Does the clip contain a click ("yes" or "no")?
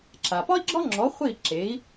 yes